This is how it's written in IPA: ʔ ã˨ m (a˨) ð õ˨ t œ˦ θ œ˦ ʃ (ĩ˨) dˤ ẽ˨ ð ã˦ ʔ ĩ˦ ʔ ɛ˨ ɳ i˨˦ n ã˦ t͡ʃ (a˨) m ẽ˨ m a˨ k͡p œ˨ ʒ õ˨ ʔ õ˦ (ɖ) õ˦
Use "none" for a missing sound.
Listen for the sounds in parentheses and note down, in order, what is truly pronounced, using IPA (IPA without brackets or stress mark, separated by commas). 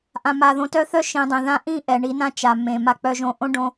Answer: a˨, ĩ˨, a˨, ɖ